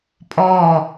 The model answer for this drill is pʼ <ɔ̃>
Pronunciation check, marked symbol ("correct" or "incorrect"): incorrect